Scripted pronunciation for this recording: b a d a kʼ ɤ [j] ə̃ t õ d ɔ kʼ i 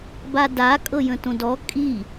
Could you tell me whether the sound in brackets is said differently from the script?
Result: no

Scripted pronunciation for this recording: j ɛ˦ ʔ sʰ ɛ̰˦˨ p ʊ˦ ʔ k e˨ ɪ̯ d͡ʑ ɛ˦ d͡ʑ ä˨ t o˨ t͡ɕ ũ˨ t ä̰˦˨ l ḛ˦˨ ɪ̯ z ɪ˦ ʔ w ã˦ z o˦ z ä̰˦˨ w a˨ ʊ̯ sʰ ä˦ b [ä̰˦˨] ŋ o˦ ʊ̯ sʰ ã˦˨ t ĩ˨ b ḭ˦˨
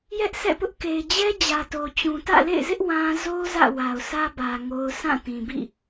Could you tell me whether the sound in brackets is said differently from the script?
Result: yes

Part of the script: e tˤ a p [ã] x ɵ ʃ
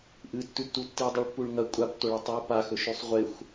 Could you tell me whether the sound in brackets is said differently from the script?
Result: yes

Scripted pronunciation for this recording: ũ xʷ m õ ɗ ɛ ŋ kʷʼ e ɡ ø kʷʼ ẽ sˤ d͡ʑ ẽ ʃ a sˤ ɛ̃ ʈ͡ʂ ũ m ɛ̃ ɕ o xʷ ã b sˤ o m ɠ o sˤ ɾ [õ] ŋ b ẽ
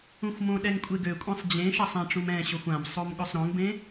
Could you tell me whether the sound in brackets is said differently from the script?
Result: no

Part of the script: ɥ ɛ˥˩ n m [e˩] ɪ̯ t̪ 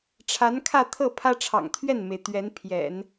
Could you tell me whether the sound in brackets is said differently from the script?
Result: no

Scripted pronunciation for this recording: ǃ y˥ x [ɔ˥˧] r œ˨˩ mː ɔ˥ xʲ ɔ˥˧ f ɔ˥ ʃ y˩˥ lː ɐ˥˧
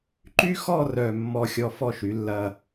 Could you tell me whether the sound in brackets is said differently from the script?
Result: no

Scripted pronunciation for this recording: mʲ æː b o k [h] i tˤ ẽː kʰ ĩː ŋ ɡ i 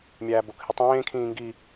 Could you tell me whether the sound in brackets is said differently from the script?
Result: no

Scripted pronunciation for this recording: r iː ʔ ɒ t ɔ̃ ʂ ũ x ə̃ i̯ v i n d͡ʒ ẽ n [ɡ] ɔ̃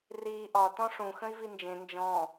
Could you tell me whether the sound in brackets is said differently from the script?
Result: yes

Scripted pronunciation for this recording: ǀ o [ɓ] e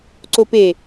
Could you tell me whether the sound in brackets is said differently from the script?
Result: yes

